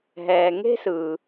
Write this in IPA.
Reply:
ɦɛː˩ ŋe̤˥sɯː˩

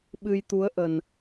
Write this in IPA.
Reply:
ɓɨ˧jt̪u˨˦ə̯ʔə˨˩n

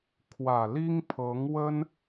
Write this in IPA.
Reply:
kʰwä˨˩li˥ŋpʰɤ˧˥ŋwə˥n

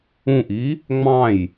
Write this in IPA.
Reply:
ũʔi | ŋ͡mɑ̃j

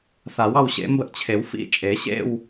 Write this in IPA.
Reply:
θa˨˩˦wɑ˥˧w ɕḛ˨˩˦ mbə˥˩ʔt͡ɕʰe˨˩˦wfḭ˧˥˧ t͡ʃʼe˨˩˦ ɕḛ˥˧w

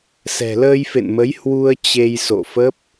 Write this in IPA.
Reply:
sɛ̤˨˩ləː˧jfḛ˧˨nmə˨˦j hwu˧ə̯ t͡ɕe˧jso̰˧˨fə˦˥p̚

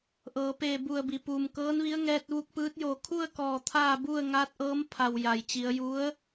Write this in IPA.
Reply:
ʔɤː˩˧peː˧˩ bu˧˩ə̯bi˩ puː˩mkɤː˧˥nʋi˧˥ə̯ ŋɛː˧t̚ʋu˧k̚pɯː˧˥t̚joː˧˩ kʰu˥˨ə̯kɔː˧˩ t̪ʰaː˥˨bu˥˨ə̯ ŋaː˧˥t̚ʔɤː˧˥m pʰa˩w ja˩jt͡ɕi˩˧ə̯ju˧˥ə̯

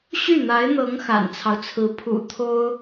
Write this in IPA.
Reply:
ɕy˥˩n̪a˧˥ɪ̯n̪ɤ˧˥ŋ xa̰˨˩nt͡sʰɑ˦ʊ̯t͡sʰɹ̩˧˥ pʰṵ˨˩ t̪ʰo˥ʊ̯

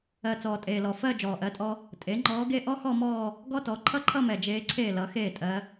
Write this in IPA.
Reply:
ɜ˨˩t͡sɔː˨˩tʼeː˨˩lɔ˨˩ fɜ˥˧ d͡ʒɔː˨˩ʔɜ˧˥tʼɔ˥ | tʼe˩˥ŋ͡ǃɔː˧˥ɡe˥˧ ʔɔ˥xɔ˥˧mɔː˥˧ | ɡɔ˥tɔ˩˥ ǃʰʌ˥˧ǃʰʌ˥˧mɛ˨˩ d͡ʒeː˧˥ǀʰeː˥˩lʌ˩˥ xeː˥˩tʼɜ˧˥

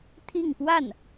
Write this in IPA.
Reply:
t̪ʰi˥˧ŋpwa˥˩n

